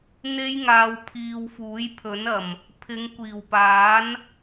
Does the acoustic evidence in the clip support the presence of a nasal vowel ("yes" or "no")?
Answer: no